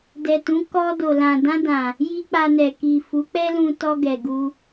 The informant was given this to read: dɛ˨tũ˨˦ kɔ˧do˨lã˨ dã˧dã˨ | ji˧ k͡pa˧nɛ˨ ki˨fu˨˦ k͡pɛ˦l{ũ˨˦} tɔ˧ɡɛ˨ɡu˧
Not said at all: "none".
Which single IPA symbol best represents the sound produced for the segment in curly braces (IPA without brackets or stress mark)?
ũ˧